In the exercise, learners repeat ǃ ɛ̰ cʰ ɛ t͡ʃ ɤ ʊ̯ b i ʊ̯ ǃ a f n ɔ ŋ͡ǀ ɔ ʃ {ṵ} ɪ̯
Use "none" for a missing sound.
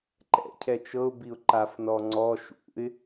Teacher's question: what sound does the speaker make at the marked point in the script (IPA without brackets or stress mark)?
ṵ